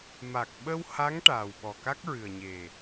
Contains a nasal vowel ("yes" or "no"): no